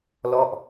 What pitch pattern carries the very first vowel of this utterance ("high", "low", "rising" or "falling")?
falling